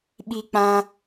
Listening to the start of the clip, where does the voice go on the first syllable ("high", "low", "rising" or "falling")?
high